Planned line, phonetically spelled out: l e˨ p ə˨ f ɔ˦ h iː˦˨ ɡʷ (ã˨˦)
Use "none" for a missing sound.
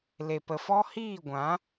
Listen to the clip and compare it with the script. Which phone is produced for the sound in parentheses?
ã˨˦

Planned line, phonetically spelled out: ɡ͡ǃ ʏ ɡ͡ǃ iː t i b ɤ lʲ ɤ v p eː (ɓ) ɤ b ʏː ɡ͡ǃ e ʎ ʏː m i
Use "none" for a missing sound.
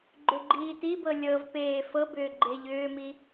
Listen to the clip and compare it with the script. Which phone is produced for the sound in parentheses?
f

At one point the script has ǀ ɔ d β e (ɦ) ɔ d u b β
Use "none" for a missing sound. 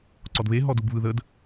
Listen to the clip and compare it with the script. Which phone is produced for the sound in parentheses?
ɦ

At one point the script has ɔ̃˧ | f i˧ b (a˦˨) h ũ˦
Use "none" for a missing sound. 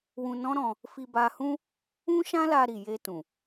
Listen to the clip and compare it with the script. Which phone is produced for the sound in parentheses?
a˧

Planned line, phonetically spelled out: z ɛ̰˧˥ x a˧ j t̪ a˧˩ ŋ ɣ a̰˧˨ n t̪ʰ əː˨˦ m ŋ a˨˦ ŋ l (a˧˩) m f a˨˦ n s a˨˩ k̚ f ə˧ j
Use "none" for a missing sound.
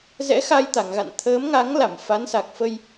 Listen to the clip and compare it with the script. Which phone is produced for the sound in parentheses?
a˧˩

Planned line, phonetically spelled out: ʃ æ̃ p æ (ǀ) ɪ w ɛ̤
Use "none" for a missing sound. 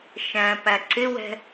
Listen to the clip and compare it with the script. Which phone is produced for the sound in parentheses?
ǀ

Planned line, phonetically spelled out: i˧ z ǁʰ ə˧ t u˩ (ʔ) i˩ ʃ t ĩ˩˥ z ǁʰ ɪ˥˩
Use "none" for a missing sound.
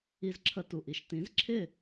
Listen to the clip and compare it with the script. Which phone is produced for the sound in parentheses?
ʔ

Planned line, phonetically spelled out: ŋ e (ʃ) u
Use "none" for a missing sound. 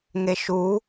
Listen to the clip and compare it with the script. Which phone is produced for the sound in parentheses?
ʃ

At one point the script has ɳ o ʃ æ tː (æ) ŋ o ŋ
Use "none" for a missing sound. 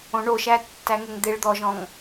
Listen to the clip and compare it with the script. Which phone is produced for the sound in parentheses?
æ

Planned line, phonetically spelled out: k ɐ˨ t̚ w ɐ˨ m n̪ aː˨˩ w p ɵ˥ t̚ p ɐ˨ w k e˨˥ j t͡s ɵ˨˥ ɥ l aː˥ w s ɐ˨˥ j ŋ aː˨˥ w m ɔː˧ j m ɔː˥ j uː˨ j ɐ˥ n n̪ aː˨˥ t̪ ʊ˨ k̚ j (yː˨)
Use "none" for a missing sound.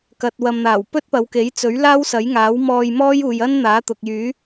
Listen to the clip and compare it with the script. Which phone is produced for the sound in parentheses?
yː˨˥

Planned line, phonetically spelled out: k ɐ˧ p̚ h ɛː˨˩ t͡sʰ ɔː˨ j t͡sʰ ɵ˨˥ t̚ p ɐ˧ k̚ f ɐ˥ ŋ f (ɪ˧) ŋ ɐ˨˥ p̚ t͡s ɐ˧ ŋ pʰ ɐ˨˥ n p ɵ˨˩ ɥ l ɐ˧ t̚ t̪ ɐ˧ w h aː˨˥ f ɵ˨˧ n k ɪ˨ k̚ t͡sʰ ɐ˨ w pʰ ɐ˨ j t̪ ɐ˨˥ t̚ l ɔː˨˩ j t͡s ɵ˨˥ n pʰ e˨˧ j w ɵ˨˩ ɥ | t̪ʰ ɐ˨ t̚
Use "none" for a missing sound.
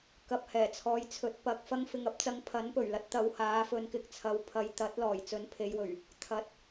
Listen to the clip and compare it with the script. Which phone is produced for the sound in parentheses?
ɪ˨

